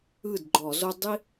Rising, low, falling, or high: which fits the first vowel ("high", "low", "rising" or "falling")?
falling